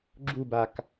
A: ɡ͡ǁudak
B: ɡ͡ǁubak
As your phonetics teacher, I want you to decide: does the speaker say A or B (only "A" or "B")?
B